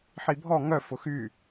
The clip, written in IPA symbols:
ħ i bʱ ɔ ŋ œ f ʊ x y

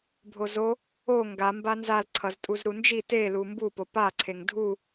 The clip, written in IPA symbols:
bʱ o z o | o ŋ ɡ a m b a n z a l ǀʰ ʌ z tʼ u z ɾ u n d͡ʒ i t e l u m b u p o p a ǀʰ e ŋ dʱ u

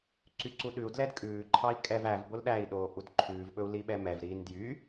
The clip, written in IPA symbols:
ǀ y ǀ u ɗ ʉ u̯ d l ɛ d kʼ ʉː ǃʰ ɑ i̯ kʼ ɛ v æ v b o l ɗ æ i̯ ɗ oː ʔ u d ǃʰ ʉː v ɓ ɵ u̯ l i ɓ ɛ m ɛ v ɾ iː n d j y

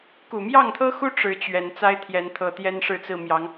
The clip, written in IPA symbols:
k u˨˩ m j ɑ˥˨ ŋ t̪ʰ ɤ˦ x u˦ ʈ͡ʂ ɻ̩˨˦ t͡ɕ ɥ ɛ˨˩ n t͡s a˦ ɪ̯ t̪ʰ j ɛ˨˦ n t̪ʰ ɤ˨˩ t̪ j ɛ˦ n ʂ ɻ̩˥˨ t͡s ɹ̩˥˨ m j ɑ˨˦ ŋ

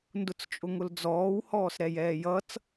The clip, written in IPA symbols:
n d ʊ t͡s t͡ʃʼ ʊ ŋ ʊ l d͡z ɔː w h ɔː s ɾ ɛ j ɛː j ʌ t͡s

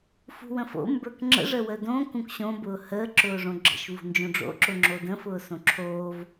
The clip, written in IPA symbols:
f ṳ w ə̃ f o̰ m b ə˞ k ŋ͡ǁ ə̰ ʐ ə w ə d õ k ũ k ɕ õ b ʊː h əː ǁ ʊː ʐ õ ɡ͡ǁ ə̰ ʃ v ṳ n d͡ʒ õ ɖ͡ʐ o̰ ǁ ʊ ŋ͡ǁ o d ə̃ f ʊː s õ ǁʰ oː v

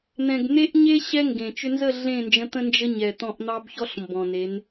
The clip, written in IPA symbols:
n̪ ɛ̃˨ ɡ n̪ e˦ ʔ ɲ e˦ ɕ ɛ˦ ŋ ɡ ẽ˨ t͡ʃ ʏ˧ n z ə˦˨ ɮ ẽ˦˨ n d͡ʒ ə̃˧ t̪ ə̃˦ n d͡ʒ ə˦ ɲ ɛ˨ t̪ ɔ̃˧ ʔ n̪ ɑ˦ b ç ɔ˦ ɬ m b ɔ̃˨ n e˨˦ n

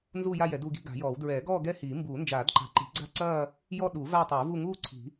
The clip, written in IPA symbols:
n z uː˥˧ j a˥˧ j ɛ˨˩˦ d u˥˧ ɡ i̤˥˧ ɡ a̤˨˩˦ j ɔː˨˩˦ w d ɹ ɛː˨˩˦ ɡ ɔː˥˧ ɡ ɛ˥˧ h iː˨˩˦ m b uː˨˩˦ n d͡ʒ aː˨˩˦ d ǃ a̤˨˩˦ ǃ i̤˨˩˦ ɡ͡ǀ a̤˥˧ ǀ ɐː˥˧ | j ɔ˥˧ ɗ u˨˩˦ v aː˥˧ tˤ uː˨˩˦ v u˥˧ ŋ uː˥˧ ǀʰ i̤˨˩˦

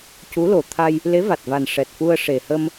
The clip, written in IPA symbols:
c u˧˥ l o˨˩ t̪ʰ a˧ j | l e˧˥ v a˨˩ t̚ v a˨˩ n ʂ ɛ˨˩ t̚ f u˧ ə̯ ʂ e˨˩ h ə˧ m

